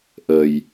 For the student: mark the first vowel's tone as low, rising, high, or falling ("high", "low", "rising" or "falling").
low